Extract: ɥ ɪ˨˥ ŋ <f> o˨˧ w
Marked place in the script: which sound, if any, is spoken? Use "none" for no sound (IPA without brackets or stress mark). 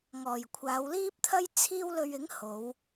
h